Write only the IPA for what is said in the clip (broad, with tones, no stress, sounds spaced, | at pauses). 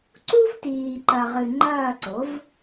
ǀ u˥ v t iː˨ ǃ ɐ˨ ʁ ɨ˨ ŋ͡ǃ ɐː˥˧ ǀ o˩˥ v